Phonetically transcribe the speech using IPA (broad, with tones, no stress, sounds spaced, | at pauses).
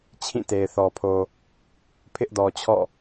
t͡ɕʰ ĩ˦˨ t e˨ ɪ̯ θ ɔ˨ pʰ o˨ | pʰ ɪ˦ ʔ d ɔ˨ t͡ɕʰ ɔ̰˦˨